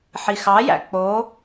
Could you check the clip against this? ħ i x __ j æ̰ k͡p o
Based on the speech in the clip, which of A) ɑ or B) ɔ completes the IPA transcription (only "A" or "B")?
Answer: A